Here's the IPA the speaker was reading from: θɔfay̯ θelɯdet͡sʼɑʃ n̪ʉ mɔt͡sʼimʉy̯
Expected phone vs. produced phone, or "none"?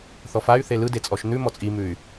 ɑ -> ɔ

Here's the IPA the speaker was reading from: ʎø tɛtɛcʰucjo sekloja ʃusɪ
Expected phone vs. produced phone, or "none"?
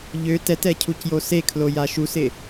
k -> kʰ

